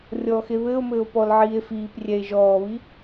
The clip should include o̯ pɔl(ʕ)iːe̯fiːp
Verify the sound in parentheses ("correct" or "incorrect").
correct